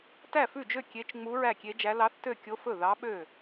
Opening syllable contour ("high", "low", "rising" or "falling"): falling